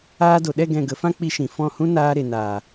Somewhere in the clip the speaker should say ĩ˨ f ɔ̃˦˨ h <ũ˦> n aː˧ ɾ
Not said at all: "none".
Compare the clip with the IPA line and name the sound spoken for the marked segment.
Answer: ũ˦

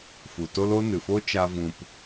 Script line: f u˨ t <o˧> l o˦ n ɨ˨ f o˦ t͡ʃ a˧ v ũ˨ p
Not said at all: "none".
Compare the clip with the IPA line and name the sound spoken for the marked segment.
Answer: o˦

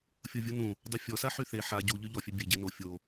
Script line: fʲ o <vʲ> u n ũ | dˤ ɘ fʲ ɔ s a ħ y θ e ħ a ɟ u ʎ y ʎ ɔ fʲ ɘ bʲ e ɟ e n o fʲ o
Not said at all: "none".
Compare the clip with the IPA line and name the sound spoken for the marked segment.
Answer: vʲ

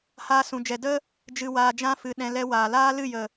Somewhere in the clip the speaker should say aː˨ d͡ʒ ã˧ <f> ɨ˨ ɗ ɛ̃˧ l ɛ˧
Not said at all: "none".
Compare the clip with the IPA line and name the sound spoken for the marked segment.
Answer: f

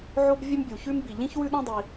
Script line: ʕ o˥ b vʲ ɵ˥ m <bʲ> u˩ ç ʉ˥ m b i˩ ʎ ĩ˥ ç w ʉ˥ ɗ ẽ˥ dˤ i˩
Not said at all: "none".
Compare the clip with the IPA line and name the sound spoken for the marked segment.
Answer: bʲ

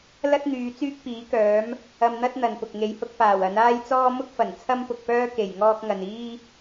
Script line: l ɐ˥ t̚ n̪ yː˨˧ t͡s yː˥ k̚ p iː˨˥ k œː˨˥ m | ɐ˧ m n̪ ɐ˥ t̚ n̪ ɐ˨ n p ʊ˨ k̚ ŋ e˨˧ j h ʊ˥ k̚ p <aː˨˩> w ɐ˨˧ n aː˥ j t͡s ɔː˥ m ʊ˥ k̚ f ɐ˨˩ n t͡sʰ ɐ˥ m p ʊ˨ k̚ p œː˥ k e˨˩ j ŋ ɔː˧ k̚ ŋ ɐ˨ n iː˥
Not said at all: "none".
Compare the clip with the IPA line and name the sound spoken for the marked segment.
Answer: aː˨˩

